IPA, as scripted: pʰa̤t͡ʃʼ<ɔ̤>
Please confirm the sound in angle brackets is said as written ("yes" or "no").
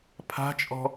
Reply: yes